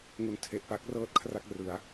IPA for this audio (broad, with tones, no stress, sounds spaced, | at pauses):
ŋ u˨˩ n tʰ e˨˩ ʔ p a˦˥ k̚ r ɤː˦˥ t̚ kʰ r a˥˩ k̚ r ɯ˩˦ a̯